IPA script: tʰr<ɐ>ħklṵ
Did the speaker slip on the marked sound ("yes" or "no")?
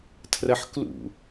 no